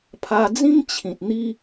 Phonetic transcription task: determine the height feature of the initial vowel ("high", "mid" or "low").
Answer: low